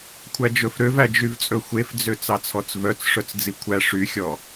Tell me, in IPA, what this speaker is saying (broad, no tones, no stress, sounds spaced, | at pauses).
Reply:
kʷʰ æ d͡ʒ ɵ f ɾ ø v æ d͡ʒ y v t͡sʼ ɵ xʷ e f d͡z ø t͡s ɑ t͡sʰ ɔ t͡s v œ t͡s ʂ œ t͡s d͡z i kʷʰ æ ʂ y xʲ ɔ